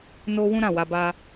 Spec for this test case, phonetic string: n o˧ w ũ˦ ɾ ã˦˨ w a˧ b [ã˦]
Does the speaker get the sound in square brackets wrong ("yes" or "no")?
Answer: yes